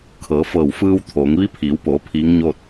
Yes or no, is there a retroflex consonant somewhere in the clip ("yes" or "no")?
no